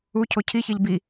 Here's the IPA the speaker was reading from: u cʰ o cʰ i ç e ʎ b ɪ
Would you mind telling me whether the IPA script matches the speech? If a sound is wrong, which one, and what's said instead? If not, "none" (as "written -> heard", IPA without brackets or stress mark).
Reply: ɪ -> i